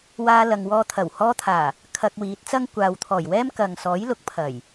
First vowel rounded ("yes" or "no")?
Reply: no